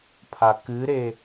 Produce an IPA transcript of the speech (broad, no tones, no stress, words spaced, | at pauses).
pʰakɨɾe